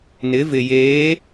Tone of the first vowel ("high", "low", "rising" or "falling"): rising